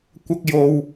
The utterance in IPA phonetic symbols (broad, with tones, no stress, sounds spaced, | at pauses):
kʷ ɐ˥ k̚ j o˧ w